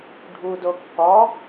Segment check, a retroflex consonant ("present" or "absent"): present